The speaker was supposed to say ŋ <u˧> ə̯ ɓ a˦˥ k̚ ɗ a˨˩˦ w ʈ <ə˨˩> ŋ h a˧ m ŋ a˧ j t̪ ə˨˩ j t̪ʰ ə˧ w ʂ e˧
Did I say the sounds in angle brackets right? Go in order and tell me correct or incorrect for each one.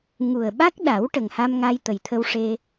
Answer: incorrect: u˨˩, correct

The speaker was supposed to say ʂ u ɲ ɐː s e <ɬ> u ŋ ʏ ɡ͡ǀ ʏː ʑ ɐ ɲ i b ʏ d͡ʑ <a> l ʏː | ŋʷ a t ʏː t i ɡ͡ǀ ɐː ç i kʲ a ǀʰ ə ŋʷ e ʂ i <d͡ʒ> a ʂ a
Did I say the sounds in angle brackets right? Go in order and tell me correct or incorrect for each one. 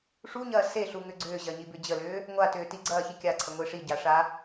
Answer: correct, incorrect: ə, incorrect: ɟ

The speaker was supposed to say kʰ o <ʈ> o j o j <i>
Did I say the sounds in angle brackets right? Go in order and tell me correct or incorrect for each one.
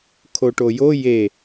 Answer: correct, incorrect: e

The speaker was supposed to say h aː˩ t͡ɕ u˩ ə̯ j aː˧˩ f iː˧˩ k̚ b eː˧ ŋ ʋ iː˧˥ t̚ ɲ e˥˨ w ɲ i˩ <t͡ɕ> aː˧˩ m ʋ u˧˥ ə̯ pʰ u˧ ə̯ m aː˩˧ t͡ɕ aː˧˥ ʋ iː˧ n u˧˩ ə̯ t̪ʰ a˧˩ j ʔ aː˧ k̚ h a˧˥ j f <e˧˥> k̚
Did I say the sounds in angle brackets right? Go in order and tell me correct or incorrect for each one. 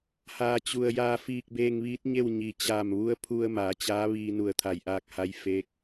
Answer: correct, correct

